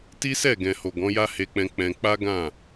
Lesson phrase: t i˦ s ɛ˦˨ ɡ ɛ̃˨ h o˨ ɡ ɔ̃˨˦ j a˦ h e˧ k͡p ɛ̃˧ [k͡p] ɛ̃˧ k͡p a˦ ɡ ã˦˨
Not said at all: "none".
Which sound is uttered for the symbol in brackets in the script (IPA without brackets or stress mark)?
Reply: k͡p